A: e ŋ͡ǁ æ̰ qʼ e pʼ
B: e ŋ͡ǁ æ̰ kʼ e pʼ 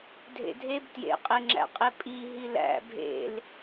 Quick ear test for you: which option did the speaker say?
A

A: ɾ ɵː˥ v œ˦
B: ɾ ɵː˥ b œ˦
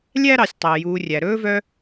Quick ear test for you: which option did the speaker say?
A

